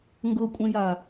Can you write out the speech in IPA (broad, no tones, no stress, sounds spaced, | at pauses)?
ŋ ɡ ɤ kʷʼ ẽ j a